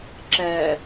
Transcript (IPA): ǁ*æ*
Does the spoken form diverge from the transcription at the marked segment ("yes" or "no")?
yes